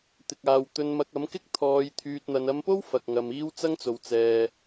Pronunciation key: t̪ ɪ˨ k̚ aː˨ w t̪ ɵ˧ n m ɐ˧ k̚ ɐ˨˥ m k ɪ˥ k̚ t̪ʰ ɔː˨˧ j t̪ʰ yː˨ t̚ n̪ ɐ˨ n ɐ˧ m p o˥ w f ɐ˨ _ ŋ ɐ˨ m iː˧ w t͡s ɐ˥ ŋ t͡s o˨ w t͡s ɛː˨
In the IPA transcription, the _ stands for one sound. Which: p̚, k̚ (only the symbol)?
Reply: k̚